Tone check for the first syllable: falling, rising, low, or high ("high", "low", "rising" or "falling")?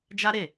high